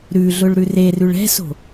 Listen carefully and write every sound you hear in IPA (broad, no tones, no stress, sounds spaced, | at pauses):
ɾ ʉ ɮ ʊ ɭ ɾ ʉ r e r ʉ ɭ ɛ̤ s o̤